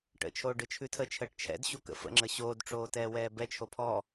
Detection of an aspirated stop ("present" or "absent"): present